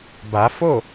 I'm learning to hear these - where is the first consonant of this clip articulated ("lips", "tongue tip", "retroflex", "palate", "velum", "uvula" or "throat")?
lips